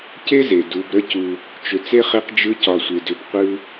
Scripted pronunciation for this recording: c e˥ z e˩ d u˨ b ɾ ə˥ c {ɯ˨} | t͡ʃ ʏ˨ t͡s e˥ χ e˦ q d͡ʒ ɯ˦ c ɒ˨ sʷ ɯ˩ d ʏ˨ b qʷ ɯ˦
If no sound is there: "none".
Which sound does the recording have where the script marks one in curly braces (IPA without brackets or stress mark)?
u˨